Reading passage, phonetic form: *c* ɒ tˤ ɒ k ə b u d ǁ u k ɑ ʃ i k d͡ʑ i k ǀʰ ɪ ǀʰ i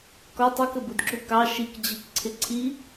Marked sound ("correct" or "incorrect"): incorrect